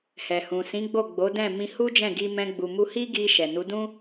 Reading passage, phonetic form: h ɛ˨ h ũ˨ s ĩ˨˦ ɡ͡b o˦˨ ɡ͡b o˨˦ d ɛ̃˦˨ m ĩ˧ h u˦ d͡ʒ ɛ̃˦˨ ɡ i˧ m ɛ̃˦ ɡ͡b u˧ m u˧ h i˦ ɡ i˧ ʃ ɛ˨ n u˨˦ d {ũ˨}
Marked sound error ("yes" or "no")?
yes